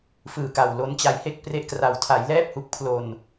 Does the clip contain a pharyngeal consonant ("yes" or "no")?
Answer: no